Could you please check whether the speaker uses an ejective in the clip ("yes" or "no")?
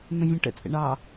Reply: yes